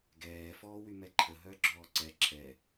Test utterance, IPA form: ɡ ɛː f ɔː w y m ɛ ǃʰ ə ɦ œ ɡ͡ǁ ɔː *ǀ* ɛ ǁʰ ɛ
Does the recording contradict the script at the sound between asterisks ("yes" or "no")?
no